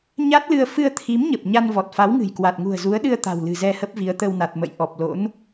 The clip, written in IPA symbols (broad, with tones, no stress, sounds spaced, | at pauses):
ɲ a˦˥ t̚ l ɨ˧ ə̯ f ɨ˧ ə̯ t̪ʰ i˨˦ m ɲ ə˨˩ p̚ ɲ a˧ n v ɔ˨˩ t̚ f a˨˦ w ŋ ɨ̤˨˩ j k w a˨˩ t̚ ŋ ṳ˨˩ ə̯ z u˨˦ ə̯ ɗ ɨ˧ ə̯ t̪ a̤˨˩ w l ɨ̤˨˩ z ɛ˧ h ə˦˥ p̚ v i˨˦ ə̯ t̪ ə˧ w n a˨˩ t̚ m ə̰˧˨ j ʔ ɔ˨˩ p̚ l o̰˧˥ n